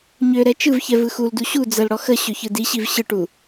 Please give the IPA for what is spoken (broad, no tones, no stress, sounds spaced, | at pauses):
ɲ ø ɾ ɛ t͡ʃ ɯ v ç ɛ v ɯ x u l d u ɕ u d͡z ə l ɽ ɔ x ə ɕ ø ç ɯ d i ɕ i v ɕ ɯ ʈ u